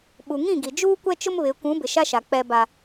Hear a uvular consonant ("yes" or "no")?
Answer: no